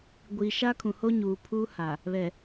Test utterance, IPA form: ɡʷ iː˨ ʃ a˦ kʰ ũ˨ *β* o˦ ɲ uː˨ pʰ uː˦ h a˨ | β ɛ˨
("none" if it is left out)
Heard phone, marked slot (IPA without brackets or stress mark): h